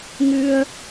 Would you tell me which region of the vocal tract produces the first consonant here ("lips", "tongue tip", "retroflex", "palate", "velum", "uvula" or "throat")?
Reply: velum